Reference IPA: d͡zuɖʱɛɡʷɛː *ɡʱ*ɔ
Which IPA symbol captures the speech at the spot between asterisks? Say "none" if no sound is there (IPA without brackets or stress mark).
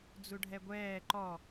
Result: ǃ